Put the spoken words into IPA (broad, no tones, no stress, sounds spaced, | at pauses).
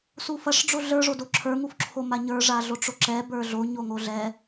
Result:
s u f ɐ ʂ ɖ͡ʐ o ɮ ə˞ ʐ o d o ǁʰ ə˞ ŋ u f ǁʰ o m a ɲ ə˞ ʐ a ɮ o ʈ͡ʂ o ǁ ɛ b ə˞ ɮ o ɲ o ŋ o ɮ ɛ